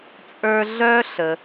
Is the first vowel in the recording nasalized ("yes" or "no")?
no